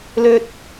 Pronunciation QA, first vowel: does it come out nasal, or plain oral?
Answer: oral